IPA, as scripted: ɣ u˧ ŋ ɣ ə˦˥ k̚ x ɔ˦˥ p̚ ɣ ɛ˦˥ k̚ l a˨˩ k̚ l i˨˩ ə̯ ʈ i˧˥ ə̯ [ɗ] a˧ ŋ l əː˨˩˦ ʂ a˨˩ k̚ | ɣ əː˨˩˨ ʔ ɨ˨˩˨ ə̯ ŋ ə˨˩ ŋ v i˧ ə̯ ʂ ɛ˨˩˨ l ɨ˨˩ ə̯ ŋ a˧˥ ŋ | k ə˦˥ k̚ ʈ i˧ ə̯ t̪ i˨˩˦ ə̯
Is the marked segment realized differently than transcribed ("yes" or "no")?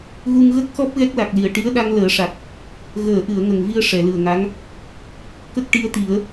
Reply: no